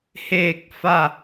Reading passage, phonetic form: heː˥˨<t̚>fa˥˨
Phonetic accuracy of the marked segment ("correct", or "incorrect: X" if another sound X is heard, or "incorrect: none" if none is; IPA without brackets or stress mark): incorrect: k̚